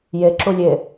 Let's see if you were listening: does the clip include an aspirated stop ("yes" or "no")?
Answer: no